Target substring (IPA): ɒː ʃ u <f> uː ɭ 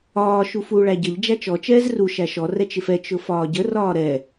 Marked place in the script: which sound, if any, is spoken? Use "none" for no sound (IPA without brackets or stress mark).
f